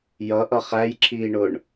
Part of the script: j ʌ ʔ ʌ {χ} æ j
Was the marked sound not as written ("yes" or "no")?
no